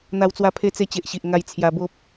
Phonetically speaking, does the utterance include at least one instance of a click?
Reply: no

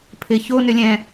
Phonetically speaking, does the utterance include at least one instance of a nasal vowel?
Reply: yes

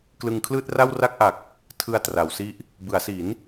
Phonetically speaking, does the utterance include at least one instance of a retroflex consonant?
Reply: no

